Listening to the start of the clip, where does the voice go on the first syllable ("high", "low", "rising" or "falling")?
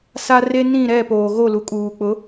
high